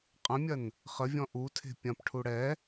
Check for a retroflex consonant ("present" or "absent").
present